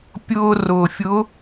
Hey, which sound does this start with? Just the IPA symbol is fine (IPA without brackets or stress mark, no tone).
pʲ